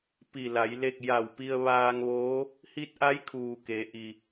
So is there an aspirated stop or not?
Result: yes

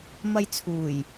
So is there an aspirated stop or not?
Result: yes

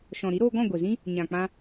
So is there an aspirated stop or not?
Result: no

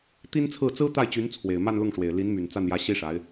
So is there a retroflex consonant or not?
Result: yes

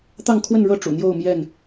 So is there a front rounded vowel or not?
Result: no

